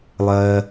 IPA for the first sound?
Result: lˠ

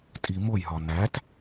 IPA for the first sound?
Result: tʼ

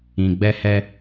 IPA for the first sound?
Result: ĩ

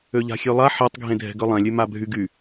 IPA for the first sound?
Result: ø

